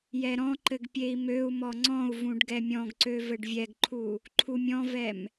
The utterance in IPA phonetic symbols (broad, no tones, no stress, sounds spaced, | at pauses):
j ɛ ɾ ɔ̃ ǃ ɘ ɡ pʲ e i̯ m ø u̯ m ɔ ŋ͡ǀ ɔ̃ u̯ v ũ ɖ ɡ ɛ mʲ ɔ̃ ɡ ǀ ø v ɘ ɖ vʲ ɛ ɡ ǃʰ u | ǃʰ u mʲ ɔ̃ v ɛ m